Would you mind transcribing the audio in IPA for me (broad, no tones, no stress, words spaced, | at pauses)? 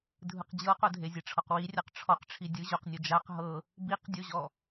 dʱɯqd͡ʑɤqodʱe zʲeʈ͡ʂʰɔqwirʲaq ʈ͡ʂʰɔqʈ͡ʂʰi dʲɯ ʑoqnʲo d͡ʒaq ɦɤ | biqdʲoʑɔ